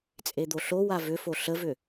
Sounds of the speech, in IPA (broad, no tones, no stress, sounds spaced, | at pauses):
t͡sʼ e d̪ o ɬ o w a v ʏ f o ɬ ə v ʏ